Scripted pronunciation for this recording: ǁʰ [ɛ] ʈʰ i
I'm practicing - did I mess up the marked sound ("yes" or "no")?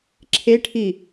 yes